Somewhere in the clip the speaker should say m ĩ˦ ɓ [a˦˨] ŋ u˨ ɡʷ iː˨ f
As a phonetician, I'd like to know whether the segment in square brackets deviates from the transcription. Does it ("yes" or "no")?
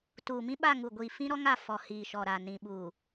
no